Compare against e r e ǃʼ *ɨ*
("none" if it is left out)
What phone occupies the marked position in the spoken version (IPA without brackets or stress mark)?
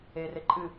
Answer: ɨ